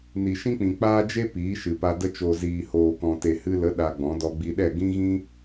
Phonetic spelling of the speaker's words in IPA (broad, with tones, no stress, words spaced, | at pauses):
ni˨ʃĩ˦k͡pĩ˨ k͡paː˦d͡ʒe˦ piː˨˦ʃɨ˨pa˧ də˧t͡ʃoː˨ ziː˨hoː˨kɔ̃˨ te˨hɨ˧lə˨˦ ɗa˧ɡ͡bɔ̃˨˦dɔ˧ ɡ͡bi˧ɗɛ˦˨ ɡĩ˦ɣĩ˦